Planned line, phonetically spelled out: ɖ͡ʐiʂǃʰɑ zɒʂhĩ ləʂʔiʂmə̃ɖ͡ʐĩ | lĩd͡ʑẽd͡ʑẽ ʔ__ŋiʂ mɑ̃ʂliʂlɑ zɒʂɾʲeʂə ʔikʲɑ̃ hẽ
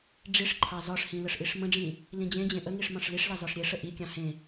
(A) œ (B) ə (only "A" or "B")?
B